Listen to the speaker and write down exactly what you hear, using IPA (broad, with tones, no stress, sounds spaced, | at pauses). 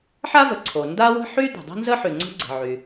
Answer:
ħ a˥ v ə˩ ǀʰ o˩ n d a˥ w ə̤˥ ħ y˥ d̪ ə̤˩ dˤ ə̤˥ n z ə˥ ħ y˩ ŋ͡ǀ ə̤˥ ɡ͡ǀ ə̤˩ ʕ y˩